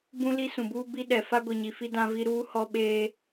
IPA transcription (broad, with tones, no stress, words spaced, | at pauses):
bũ˦li˦sũ˨buː˦ bi˦ɗɛ˨ fa˦ɡʷi˨ɲi˨fi˦ dã˦vi˦ ɾuː˦hɔ˦ɓeː˦